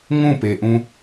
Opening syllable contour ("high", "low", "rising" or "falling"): falling